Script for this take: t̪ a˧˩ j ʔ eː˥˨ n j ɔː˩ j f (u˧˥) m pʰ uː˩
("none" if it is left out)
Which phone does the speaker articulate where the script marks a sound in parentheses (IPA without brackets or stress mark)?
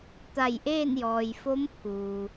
o˧˥